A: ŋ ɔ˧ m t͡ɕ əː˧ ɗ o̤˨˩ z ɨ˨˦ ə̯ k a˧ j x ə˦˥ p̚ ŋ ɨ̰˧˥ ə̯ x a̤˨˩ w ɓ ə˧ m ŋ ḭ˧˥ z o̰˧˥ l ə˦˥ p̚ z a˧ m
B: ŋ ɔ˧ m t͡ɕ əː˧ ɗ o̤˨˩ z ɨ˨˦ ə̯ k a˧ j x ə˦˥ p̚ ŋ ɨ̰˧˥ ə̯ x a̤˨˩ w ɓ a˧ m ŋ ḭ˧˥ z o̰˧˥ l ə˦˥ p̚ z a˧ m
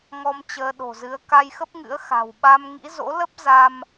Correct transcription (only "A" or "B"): B